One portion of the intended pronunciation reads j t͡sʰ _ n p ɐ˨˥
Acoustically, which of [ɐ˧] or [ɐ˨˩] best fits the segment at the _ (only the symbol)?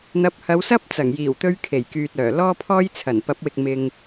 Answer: ɐ˨˩